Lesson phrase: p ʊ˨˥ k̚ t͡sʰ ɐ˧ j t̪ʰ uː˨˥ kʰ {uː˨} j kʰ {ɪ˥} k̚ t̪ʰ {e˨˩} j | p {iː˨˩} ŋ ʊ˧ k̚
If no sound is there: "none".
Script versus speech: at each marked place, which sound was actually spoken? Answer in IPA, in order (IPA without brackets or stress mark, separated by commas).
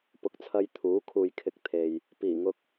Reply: uː˨, ɪ˧, e˨, iː˨˩